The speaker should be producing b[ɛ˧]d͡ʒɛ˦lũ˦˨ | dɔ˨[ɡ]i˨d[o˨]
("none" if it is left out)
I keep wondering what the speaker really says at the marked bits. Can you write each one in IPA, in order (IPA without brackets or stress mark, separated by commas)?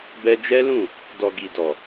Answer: ɛ˧, ɡ, ɔ˨